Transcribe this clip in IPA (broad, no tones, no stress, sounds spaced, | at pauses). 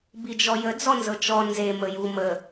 b i d͡ʒ ɔ j ə d͡z ɔ n z ɤ t͡ʃ ɔ n z e m ə j u m ə